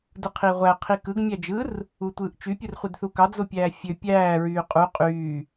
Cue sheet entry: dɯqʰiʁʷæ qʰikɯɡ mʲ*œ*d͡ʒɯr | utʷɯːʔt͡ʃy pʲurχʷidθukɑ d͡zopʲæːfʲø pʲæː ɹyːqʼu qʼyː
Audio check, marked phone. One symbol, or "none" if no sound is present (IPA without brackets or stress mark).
æ